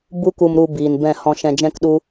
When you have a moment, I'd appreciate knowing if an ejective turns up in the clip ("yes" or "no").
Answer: no